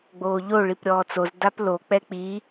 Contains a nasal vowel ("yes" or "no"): no